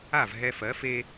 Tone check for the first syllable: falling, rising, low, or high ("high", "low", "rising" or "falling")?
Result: falling